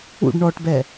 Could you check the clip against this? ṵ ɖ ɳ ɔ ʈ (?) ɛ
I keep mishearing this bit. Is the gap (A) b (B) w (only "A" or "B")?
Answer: A